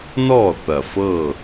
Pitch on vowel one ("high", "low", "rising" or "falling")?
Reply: falling